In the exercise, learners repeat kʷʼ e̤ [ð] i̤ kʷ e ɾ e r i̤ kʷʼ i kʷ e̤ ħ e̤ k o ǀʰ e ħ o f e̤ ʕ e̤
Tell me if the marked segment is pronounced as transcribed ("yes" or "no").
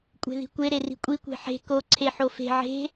yes